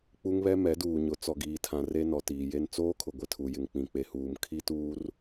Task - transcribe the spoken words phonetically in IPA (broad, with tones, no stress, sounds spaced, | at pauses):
k͡p u˦ ŋ β ɛ˦ m ɛ˨˦ d uː˨ ɲ ʊ˨˦ t͡s ɔ˨ ɡ iː˨ tʰ ã˨ r e˦ n ɔ˨ t iː˨ j e˦ n t͡s oː˦ kʰ ʊ˨ ɡʷ ɪ˦ tʰ u˨ j ɪ˨ ŋ k͡p ĩ˨ k͡p e˨ h uː˨ m kʰ i˦ t uː˦ r